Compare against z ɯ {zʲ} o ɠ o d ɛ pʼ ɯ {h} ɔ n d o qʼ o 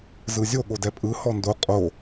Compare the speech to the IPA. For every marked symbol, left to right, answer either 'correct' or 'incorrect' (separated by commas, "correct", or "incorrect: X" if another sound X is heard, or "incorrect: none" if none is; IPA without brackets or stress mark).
correct, correct